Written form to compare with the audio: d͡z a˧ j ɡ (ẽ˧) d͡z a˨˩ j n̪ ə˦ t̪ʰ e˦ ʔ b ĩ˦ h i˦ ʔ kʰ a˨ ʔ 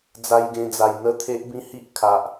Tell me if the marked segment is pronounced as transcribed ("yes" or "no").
yes